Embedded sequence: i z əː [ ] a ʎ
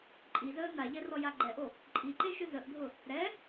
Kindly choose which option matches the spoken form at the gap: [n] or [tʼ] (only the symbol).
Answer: n